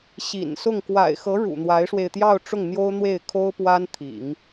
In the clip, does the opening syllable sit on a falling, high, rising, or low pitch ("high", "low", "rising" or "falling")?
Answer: low